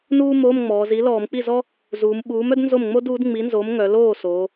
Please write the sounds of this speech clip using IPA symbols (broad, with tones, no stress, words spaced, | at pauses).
nuː˥moː˧˥˧mŋ͡mɔː˩˧zi˨˥ lɔː˧˩˧mk͡pi˥˩zɔ˥ | zuː˩˧m ɓuː˨˥mœ˥d nzo˥˩mŋ͡mo˥duː˨˥d ŋ͡mi˨˥nzo˨˥m ŋœ˩˧loː˥˩so˩˧